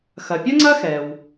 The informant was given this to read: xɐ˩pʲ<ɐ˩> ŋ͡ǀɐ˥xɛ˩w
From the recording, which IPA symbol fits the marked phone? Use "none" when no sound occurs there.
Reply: ɐ˥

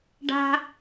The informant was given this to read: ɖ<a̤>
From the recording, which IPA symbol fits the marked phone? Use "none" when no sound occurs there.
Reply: a̤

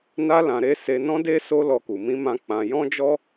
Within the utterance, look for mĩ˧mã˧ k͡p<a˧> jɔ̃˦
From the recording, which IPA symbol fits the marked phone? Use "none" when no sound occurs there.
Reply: ã˧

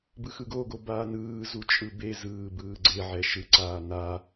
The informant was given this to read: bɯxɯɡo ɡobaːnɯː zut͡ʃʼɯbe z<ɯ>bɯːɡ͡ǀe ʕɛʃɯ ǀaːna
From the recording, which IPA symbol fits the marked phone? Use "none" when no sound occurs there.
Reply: ɯː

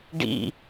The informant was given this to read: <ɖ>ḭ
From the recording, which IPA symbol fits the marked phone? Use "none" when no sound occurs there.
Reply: ɖ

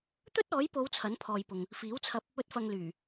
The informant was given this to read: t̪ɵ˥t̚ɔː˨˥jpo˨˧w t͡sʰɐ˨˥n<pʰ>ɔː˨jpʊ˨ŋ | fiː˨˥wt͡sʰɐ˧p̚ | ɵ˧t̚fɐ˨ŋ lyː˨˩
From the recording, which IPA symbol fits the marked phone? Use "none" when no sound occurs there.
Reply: pʰ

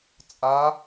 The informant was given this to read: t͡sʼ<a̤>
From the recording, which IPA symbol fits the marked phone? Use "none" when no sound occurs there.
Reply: a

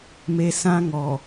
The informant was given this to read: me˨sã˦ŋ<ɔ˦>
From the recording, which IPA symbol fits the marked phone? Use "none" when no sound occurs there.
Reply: ɔ˨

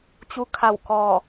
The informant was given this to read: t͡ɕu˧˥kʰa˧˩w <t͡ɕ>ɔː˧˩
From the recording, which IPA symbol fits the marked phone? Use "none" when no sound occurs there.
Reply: k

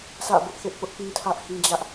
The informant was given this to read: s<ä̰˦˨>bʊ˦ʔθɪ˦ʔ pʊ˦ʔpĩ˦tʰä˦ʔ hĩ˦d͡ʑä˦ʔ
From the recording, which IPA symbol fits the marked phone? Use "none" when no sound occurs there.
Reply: ä̰˦˨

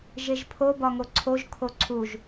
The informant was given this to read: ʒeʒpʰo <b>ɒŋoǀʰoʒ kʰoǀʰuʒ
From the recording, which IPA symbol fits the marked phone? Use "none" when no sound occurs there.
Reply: b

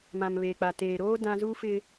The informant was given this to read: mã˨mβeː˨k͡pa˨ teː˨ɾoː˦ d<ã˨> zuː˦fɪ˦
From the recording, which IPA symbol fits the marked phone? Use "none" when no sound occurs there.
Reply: ã˦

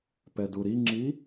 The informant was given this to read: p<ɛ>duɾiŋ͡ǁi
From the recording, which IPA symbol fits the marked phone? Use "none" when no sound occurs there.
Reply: ɛ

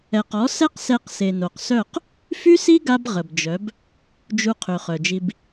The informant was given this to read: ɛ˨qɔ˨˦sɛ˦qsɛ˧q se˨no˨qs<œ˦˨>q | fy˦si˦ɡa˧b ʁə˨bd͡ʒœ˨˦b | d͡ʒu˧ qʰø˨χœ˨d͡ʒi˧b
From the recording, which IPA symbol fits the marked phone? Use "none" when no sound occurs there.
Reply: œ˦˨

